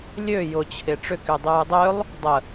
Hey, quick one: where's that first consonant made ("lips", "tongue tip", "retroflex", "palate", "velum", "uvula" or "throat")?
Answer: tongue tip